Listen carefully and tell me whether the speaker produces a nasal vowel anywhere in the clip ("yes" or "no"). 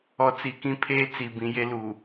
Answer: yes